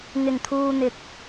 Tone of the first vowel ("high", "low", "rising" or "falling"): low